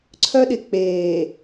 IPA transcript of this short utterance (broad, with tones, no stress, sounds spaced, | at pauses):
ǀʰ œ˦ ɗ ɪ˨ k͡p eː˨